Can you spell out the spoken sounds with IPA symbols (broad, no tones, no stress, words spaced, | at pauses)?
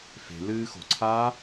fe̤lɨː xo̤ǀʰaː